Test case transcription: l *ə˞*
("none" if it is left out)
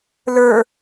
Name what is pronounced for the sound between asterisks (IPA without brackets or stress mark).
ə˞